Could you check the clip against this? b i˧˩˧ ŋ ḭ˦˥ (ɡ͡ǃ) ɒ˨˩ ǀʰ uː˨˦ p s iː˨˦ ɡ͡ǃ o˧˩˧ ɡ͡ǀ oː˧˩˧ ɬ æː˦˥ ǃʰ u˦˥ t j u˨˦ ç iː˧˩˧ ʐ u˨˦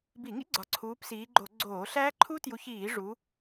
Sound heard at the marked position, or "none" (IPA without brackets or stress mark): ɡ͡ǀ